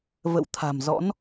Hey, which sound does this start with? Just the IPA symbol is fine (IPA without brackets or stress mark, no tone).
v